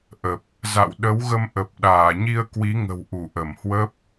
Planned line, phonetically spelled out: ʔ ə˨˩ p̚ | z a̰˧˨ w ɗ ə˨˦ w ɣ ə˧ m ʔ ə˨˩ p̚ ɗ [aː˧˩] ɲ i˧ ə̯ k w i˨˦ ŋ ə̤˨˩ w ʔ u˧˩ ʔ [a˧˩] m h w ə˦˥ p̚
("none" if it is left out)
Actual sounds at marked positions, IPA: aː˧˩, ə˧˩

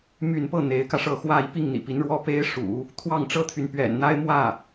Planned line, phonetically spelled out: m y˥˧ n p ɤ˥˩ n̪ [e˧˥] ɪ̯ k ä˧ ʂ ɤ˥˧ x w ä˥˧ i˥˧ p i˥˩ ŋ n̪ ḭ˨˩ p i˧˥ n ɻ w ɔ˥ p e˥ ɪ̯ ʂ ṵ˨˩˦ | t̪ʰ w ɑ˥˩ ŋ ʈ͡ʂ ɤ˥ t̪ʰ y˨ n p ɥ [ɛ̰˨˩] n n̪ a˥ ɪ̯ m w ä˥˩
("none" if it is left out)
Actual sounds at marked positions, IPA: e˧˥, ɛ̰˨˩

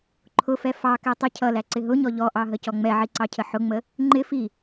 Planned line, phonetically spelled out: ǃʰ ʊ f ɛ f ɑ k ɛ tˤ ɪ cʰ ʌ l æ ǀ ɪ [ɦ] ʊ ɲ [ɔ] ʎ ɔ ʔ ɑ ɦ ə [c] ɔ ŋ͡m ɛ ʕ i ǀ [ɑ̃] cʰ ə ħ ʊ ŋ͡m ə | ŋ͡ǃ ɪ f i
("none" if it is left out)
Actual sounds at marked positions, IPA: ɦ, ɔ, c, ɑ

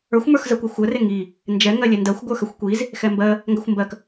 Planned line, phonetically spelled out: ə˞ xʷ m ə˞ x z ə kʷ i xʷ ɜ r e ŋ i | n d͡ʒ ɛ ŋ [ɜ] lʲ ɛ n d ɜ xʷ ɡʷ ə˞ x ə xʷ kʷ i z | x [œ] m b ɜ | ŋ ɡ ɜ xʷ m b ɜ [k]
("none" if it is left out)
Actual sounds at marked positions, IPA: ɜ, ɛ, k

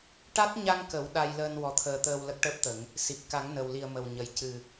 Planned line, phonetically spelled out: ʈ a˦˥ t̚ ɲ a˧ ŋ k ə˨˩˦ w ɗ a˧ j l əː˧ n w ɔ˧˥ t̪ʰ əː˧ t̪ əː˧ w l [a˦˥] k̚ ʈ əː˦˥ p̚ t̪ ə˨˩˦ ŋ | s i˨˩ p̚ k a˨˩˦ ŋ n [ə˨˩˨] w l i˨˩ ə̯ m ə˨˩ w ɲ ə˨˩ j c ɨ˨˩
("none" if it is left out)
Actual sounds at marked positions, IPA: ə˦˥, ə˨˩

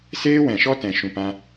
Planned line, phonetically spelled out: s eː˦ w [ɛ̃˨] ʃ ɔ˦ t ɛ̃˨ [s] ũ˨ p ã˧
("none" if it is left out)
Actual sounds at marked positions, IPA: ɛ̃˨, ʃ

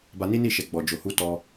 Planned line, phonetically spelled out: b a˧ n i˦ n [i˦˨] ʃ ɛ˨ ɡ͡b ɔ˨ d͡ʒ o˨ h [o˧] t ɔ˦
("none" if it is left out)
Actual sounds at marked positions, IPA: i˦˨, u˧

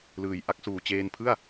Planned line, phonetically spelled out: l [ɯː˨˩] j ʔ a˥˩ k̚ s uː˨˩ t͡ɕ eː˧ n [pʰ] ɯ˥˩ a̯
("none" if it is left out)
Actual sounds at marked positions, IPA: ɯː˨˩, pʰ

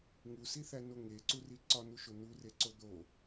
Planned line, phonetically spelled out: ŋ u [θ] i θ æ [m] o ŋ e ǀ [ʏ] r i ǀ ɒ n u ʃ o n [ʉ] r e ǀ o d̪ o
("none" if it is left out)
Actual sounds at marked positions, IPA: s, n, u, u

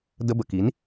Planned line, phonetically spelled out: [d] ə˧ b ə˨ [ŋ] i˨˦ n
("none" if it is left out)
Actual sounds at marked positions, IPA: d, k

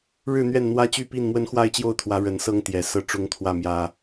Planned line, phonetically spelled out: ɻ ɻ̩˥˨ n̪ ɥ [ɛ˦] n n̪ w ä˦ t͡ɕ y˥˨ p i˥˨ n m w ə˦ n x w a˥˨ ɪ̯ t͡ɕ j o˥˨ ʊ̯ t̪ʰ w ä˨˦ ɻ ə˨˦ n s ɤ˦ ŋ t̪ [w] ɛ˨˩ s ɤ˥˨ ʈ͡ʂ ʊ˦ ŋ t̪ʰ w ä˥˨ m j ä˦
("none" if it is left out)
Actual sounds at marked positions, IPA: ɛ˥˨, j

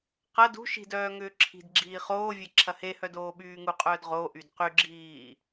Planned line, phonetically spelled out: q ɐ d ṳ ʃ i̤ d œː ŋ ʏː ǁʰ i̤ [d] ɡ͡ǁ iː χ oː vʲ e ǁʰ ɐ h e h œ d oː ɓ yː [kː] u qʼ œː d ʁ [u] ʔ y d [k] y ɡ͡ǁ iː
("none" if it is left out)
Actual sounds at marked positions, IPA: d, ŋ, o, q

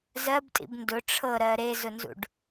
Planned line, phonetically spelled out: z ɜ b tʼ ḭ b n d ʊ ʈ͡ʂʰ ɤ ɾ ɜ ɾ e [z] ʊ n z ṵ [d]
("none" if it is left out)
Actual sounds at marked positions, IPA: z, ɖ

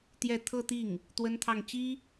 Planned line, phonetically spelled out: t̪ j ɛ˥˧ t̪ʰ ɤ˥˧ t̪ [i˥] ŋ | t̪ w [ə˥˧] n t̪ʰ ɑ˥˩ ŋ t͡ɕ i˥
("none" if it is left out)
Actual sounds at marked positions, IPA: i˥˩, ə˥

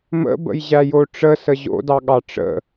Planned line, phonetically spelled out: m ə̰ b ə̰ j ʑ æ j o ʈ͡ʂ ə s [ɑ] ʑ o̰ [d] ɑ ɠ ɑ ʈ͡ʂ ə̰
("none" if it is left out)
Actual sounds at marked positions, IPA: ə, d

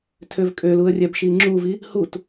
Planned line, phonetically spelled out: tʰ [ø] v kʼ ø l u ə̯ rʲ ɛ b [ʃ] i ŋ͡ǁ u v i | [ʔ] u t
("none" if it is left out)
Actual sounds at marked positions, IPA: ø, ʃ, h

